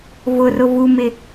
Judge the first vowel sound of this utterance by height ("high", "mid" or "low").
high